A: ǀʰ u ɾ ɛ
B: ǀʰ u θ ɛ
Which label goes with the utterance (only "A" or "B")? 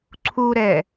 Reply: A